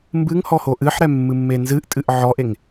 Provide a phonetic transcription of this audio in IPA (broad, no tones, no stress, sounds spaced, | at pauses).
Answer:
m b ɨ ŋ h ɔ h o ʔ ɨ ħ ɾ ɛ mː ɨ mː e n z ɨ ʔ tʼ ɨ ʔ ʕ ɔ ʔ e ŋ